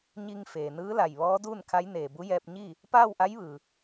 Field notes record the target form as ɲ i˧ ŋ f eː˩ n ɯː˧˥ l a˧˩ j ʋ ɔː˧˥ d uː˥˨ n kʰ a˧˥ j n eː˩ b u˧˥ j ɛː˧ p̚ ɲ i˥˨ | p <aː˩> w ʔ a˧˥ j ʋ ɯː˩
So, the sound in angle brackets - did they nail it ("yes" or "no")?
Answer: no